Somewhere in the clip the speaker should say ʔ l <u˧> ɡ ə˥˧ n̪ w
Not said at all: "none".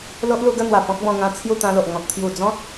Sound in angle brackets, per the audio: u˧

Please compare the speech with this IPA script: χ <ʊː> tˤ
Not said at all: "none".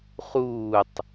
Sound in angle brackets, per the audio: uː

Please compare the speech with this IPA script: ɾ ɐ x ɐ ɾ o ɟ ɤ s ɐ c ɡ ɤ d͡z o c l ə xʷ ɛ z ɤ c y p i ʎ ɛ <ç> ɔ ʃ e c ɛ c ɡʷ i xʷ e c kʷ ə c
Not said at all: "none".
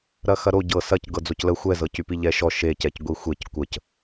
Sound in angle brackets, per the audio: ʃ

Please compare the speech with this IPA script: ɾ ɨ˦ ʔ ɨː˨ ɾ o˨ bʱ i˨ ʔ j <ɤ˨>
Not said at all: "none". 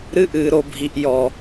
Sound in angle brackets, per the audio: ɔ˨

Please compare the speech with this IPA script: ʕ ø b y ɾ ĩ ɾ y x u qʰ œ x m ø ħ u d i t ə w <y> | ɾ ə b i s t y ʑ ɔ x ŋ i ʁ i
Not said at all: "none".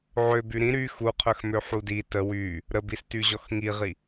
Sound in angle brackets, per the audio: y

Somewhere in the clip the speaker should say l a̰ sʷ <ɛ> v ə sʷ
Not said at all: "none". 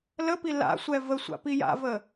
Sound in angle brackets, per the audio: ɛ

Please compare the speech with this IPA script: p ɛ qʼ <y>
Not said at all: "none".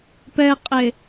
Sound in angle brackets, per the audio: e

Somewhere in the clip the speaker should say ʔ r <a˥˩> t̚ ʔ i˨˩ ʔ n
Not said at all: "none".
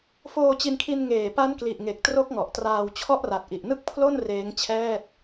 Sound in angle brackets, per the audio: a˨˩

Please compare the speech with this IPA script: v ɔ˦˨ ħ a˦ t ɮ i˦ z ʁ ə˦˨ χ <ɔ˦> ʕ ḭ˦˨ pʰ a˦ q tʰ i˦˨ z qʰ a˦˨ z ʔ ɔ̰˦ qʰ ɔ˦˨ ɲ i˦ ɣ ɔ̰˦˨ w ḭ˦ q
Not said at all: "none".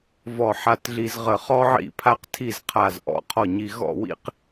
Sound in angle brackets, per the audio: ɔ˦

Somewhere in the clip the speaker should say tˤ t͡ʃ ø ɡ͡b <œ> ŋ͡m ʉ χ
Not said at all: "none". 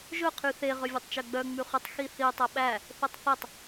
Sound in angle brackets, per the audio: œ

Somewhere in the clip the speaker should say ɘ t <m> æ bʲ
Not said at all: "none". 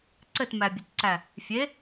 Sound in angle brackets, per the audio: m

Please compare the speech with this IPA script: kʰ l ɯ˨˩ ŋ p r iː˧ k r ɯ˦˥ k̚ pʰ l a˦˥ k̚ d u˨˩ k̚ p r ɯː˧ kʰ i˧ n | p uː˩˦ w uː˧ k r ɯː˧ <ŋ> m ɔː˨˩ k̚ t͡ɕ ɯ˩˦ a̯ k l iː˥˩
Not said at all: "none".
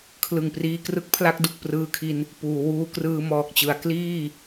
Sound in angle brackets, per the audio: none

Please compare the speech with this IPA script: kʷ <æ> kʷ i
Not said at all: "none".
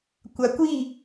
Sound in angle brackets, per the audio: a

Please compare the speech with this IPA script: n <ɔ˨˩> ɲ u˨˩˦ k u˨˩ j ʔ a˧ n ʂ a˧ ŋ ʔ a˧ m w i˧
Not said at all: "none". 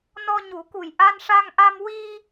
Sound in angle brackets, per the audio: ɔ˧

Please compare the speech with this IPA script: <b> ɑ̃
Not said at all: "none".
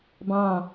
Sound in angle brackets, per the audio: b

